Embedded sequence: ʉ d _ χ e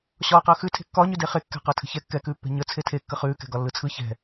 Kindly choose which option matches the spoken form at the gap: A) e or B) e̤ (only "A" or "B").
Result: A